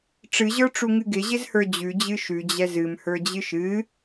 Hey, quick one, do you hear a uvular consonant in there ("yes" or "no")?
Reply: no